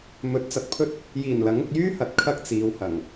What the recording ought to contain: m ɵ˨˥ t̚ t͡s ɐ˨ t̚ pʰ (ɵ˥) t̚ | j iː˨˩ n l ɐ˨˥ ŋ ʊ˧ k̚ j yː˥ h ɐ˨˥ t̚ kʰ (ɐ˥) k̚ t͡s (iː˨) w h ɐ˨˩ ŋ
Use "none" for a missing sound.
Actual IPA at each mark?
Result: ɵ˥, ɐ˥, iː˨˧

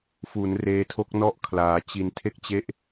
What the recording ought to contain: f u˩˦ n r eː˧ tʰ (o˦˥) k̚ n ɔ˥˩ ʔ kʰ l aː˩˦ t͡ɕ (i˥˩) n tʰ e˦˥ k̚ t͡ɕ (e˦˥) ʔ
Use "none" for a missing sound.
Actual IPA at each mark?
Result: o˦˥, i˩˦, e˦˥

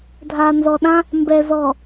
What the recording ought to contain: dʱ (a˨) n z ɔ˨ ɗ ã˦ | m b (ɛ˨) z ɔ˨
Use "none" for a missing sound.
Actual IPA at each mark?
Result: a˨, ɛ˨

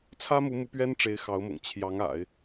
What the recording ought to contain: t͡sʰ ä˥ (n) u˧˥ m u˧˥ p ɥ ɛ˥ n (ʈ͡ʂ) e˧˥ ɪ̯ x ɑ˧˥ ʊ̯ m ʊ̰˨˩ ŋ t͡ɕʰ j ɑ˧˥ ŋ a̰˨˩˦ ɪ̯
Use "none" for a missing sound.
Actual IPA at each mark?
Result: m, ʈ͡ʂ

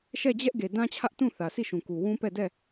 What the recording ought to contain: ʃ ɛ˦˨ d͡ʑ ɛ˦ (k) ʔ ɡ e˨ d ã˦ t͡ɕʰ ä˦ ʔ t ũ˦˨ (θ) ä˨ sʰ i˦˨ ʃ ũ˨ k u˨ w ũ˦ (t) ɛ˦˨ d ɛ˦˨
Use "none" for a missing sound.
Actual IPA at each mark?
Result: none, θ, p

